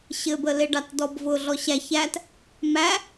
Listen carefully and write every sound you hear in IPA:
ɕɘbəleɖɑt dɔbvʊ ɮɔɕæç æt | mæ

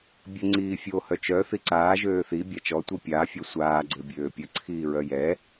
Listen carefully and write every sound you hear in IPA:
bʲəŋ͡ǀiːfʲo hœt͡ʃœ θiǀaː ʒøːθi bʲat͡ʃɔ tʷipʲaː fʲɔsʷaː ɡ͡ǀøbʲøːpʲə ǀʰiːɹœjɛ

